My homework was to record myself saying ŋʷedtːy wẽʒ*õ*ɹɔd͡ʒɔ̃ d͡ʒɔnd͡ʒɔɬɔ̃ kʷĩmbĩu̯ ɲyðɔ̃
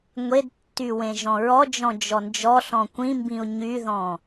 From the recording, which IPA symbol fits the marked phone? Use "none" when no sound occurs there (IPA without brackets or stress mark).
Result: ɔ̃